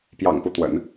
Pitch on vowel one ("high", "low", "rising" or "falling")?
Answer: low